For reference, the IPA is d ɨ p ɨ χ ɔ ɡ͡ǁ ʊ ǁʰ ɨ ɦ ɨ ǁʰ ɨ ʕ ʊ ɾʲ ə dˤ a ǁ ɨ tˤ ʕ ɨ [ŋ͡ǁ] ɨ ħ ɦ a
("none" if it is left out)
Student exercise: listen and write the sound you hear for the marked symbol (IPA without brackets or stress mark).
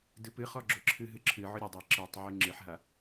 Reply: ŋ͡ǁ